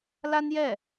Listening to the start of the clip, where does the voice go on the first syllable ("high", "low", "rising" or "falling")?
high